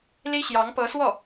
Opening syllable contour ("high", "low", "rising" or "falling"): high